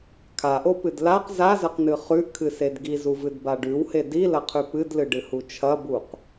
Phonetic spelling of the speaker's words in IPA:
kʰ a ʔ o p ɨ d l a q z a z ɐ q n ɨ χ ʉ ʔ kʰ ɨ s e d ɡ i z u v ɨ d b a ɖ ʉ w h e d i l ɐ qʰ ʉ p ɨ d l ɨ ɖ ɨ h u t͡ʃʰ ɐ b u q

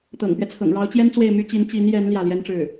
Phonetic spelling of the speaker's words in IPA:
t̪ ɤ̰˨˩ ŋ p ɥ ɛ˦ t͡sʰ ɤ̰˨˩ ŋ ɻ ɑ˧˥ ʊ̯ t͡ɕ j ɛ˥ n t͡s w e˥˩ ɪ̯ m y˥ t͡ɕ i˧˥ n t͡ɕ i˧˥ n j ɛ˧˥ n l j ä˥˩ l j ɛ˥ n ʈ͡ʂ ɻ̩˥˩

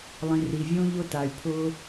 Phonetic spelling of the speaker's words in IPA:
lˠ ĩ˩ r i˩ vʲ õ˧ ʎ ʊ˧ t a˩ y̯ pʰ ʊː˧

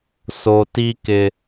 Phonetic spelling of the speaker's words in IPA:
s o˨ t i˧ k ɪ˨

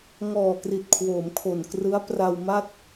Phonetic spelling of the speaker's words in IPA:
ŋ ɔː˨˩ k r i˨˩ t̚ kʰ w oː˩˦ m kʰ o˨˩ n k r ɯ˦˥ a̯ p r a˧ w m a˥˩ t̚

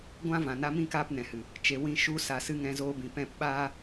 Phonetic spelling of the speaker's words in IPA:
ɡʷ ã˦ v ã˨ n a˧ m ĩ˦˨ k aː˧ p n ɛ̃˨ h ɨ˨ | t͡ʃ e˧ w ĩ˦ ʃ u˦ s a˨ s ɨ˧ ŋ ɛ̃˧ z oː˧ b ĩ˨ p ɛ̃˦˨ p ɓ aː˦

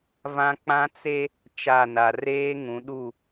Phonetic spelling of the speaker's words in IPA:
v ã˦ k͡p ã˦ t͡s e˦ | t͡ʃ a˦˨ n a˨ r eː˦ ŋ ũ˨˦ ɗ u˦˨

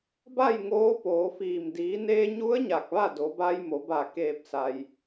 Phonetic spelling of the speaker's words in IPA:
b a˥˨ j ŋ oː˧˥ p oː˩˧ f iː˧˩ m d iː˩˧ n eː˧ ɲ u˧˥ ə̯ ɲ a˧˩ k̚ ʋ a˥˨ d o˩˧ b a˧ j m o˩˧ b a˧˩ k eː˧˩ p̚ s a˩ j

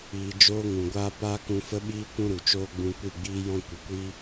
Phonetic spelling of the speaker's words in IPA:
iː˧ d͡ʒ oː˦ ŋ ũ˨ ɡʷ aː˦ p aː˦ k ũ˧ f ə˦ ɓ iː˦ kʷ ũ˦ ɾ u˨ t͡ʃ oː˦ ɡ͡b ũ˧ kʷ i˦˨ ɡ͡b iː˦ j ɔ̃˧ kʷ ə˨ kʷ iː˦

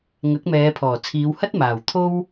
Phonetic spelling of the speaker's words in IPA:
ŋ ɐ˨˥ k̚ m ɛː˨˧ pʰ ɔː˨˩ t͡sʰ iː˨˧ w h ɐ˥ t̚ m aː˨˩ w t̪ʰ o˥ w

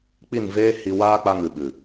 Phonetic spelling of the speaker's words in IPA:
k͡p i˦˨ n v eː˦ h i˧ w aː˦ k͡p a˧ ŋ ɨ˨ ɓ ɨ˨

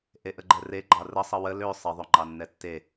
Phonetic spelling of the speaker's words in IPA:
ʔ e ʔ ə ɡ͡ǃ ɛ r e ɡ͡ǃ ɑ r ə sˤ ə w ə l ø sˤ ə ðˤ ø ŋ͡ǃ ɑ nː ɛ tː e

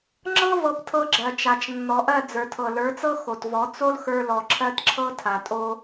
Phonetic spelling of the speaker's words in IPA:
ŋ͡ǁ ɤ˦ v ɤ˧ p tʰ ɤ˧ ɡ͡ǁ ɜ˨ t͡ʃ a˨ t͡ʃ nː ɔ˨ ʔ ɜ˦˨ d͡z ə˞˨ tʰ ɤ˨ l ə˞˨˦ t͡s ɤ˦ x o˨ t v ɔ˨˦ t͡s o˦ l x ə˞˧ l ɔ˨ ǁʰ ɜ˦ t ǁʰ ɤ˦ tʰ a˨ tʼ o˦

